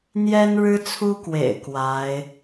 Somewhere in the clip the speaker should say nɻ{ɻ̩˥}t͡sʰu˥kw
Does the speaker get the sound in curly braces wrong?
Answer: no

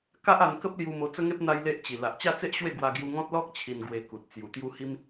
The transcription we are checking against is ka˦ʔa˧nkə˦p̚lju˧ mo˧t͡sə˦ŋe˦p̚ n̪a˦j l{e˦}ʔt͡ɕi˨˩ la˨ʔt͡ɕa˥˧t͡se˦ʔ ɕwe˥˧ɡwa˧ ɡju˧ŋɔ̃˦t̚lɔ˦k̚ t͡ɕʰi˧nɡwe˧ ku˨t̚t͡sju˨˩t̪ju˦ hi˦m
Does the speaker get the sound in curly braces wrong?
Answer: no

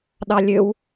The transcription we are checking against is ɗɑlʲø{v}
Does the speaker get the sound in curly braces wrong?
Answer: yes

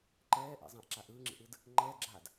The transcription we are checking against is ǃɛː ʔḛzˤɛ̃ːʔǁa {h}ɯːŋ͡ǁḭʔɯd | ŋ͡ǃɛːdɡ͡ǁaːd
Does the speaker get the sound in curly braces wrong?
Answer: yes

